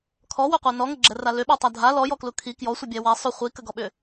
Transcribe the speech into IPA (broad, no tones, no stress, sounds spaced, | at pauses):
kʰ ɔ w ʏ qʷ ɛ n ɔ ŋ ə ɡ͡ǁ ɛ r a l ʏ ɓ ɔ tˤ a dʱ a l ɔ j ɔ k l u kʰ i k j ɔ sʷ ə bʲ æ w a sˤ ʏ χʷ i k ə ɡ ɔ ɓ ʏ